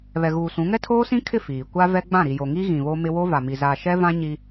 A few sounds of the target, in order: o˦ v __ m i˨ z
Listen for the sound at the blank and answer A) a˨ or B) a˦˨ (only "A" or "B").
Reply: A